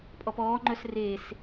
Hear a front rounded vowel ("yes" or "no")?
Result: yes